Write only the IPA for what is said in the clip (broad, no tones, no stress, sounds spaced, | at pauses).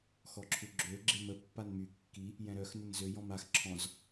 x ɔ ǁʰ u ɡ͡ǁ ø ɡ͡ǁ e m ə pː a n m y kː i | j ɛ̃ ɾ œ x n ə n z ø j ɔ̃ m a x ǁʰ ɔ̃ z